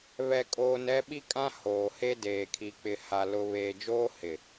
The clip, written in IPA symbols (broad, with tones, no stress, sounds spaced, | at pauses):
β ɛ˦ kʼ oː˦ n ɛ˦ ɓ i˦ kʼ ã˦ h oː˨ h e˦ d eː˨ kʰ i˨ k͡p ɪ˨ h a˨ l ʊ˨ β eː˨ d͡ʒ oː˦ h ɪ˨